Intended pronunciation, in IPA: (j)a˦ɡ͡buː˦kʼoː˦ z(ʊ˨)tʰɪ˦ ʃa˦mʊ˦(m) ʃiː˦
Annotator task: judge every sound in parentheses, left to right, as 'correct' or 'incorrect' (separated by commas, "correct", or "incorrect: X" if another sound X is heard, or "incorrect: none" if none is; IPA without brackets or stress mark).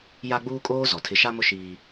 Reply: correct, incorrect: ɔ˨, incorrect: none